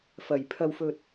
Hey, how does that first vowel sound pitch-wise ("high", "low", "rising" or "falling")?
low